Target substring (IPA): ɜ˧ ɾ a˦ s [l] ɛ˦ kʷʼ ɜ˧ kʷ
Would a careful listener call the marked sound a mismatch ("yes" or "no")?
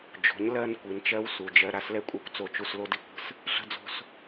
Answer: no